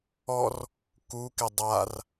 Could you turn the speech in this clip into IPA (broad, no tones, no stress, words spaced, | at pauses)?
ɔr | kukɪ dˤar